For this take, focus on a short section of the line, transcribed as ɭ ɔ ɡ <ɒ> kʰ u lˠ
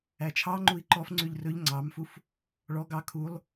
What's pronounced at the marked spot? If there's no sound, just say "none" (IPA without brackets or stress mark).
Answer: ɑ